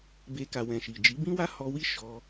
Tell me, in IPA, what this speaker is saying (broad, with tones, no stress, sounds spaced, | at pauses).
b e˧ k a˨ w ɛ̃˨ ʃ i˨ d͡ʒ i˨˦ b ĩ˦ w a˦ h ɔ˧ w i˦ ʃ ɔ˧